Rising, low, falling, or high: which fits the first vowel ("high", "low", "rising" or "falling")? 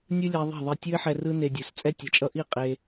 high